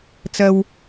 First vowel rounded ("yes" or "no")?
no